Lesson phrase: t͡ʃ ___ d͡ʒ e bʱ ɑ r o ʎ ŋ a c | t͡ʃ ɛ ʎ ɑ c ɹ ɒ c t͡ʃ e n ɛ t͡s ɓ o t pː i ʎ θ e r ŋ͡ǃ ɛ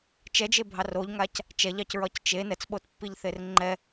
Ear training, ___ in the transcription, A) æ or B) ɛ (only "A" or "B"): B